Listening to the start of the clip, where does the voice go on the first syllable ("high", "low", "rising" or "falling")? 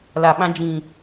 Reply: low